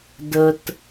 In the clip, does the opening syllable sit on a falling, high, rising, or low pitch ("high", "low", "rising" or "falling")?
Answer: low